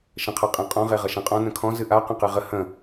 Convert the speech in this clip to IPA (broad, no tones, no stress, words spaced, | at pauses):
ʃə̃qʰɤqʼẽqʼɔ̃ ʁeʁʌʃẽqʼɔ̃ nə̃kʰɔ̃ zɨʔa qə̃qɨʁə hə̃